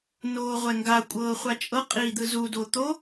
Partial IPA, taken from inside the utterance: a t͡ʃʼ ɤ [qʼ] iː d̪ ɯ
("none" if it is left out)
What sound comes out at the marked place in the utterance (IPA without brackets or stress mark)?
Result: qʼ